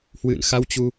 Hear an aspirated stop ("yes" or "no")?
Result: no